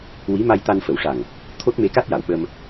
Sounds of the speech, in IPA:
wi˧˥ ma˧jt̪a˧nfə˨˩˦wʂa˨˩ŋ | t̪ʰo˦˥t̚me˧˥ka˦˥t̚ ja˨˩˨wɓə˧m

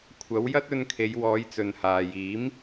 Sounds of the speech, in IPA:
kʷʰɐ˨˥wjɐ˥t̚ɵ˧nkʰe˨˧j wɔː˨˧jt͡sɵ˨nhaː˨jiː˨˥m

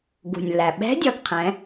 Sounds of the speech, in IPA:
ɡṳ˩nʲlːæ˩ɓɛ̤˧˥dʲʌ˩˧ɡ qʰɛ̃˩˧

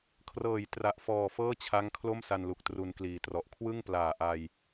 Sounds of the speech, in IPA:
kʰrɤː˨˩jtra˨˩ʔfɔː˨˩ fɤː˥˩t͡ɕʰa˦˥ŋ kʰlo˥˩msa˧nlu˨˩k̚ tru˧nkliː˨˩trɔ˨˩ʔ kʰwɯ˥˩ŋplaː˨˩ʔa˧j

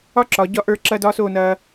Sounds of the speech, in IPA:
ɒ˥ǁɒ˩˧ ɟɒ˧ʔə˞˧ǁɐ˧ dɒː˥soː˥˧ nɐː˧

